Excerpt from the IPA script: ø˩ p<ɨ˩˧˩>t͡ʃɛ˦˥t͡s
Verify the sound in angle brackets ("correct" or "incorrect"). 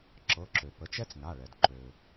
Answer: incorrect